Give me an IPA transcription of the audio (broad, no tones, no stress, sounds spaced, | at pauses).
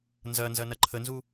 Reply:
n z ɐ n z ɐ n ɐ ǃʰ ə n z u